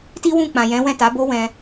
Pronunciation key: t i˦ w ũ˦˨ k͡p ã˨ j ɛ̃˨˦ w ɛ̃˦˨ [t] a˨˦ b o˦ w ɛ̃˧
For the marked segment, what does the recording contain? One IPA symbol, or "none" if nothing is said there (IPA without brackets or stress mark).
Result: t